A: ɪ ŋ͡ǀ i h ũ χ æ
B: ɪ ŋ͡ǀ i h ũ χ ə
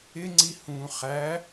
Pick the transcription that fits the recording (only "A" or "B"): A